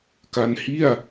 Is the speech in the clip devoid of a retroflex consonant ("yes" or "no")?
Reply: yes